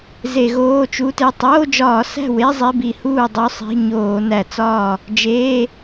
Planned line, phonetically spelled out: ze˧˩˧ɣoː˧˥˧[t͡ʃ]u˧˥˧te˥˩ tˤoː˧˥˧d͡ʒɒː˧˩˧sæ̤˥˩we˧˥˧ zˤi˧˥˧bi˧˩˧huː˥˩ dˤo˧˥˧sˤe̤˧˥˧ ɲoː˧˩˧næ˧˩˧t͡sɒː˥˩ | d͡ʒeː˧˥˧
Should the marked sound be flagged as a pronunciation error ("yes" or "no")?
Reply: no